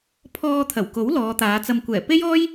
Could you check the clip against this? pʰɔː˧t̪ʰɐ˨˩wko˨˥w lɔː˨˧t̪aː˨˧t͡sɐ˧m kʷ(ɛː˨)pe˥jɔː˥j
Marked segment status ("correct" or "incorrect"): incorrect